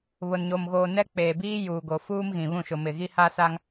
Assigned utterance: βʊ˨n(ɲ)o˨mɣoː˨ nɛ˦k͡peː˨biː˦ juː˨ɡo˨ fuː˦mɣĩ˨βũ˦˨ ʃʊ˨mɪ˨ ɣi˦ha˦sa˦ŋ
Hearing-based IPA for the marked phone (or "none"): ɲ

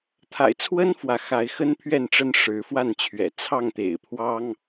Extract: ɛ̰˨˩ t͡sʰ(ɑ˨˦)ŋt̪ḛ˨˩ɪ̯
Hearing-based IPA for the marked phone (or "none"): ɑ˥˨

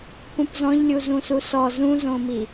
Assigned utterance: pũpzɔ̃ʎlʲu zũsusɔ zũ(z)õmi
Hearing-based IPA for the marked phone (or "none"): z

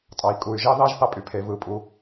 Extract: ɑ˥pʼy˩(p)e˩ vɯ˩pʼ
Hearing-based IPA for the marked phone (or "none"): pʰ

